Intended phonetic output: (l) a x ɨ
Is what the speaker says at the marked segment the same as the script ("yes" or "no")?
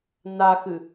no